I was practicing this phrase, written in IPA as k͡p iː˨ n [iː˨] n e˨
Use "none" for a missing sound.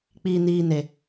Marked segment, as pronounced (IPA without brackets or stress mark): iː˨